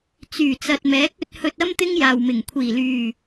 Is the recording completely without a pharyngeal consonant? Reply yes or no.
yes